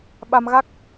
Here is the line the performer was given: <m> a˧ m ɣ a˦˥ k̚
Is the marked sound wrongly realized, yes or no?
yes